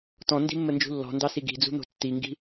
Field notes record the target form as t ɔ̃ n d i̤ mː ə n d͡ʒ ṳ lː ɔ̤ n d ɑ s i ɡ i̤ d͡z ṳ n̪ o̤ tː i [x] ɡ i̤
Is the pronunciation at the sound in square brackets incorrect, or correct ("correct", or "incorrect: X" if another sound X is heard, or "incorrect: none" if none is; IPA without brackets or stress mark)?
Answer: incorrect: ŋ